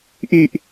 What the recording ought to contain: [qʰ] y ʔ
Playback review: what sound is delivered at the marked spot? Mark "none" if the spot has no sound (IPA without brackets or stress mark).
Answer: ʔ